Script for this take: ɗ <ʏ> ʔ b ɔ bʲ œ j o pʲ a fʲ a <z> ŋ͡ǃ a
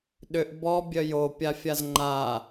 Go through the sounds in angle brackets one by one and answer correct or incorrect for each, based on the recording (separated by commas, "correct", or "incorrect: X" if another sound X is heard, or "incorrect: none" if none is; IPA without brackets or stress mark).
correct, correct